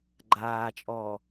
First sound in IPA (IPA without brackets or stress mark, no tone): ɡ͡ǃ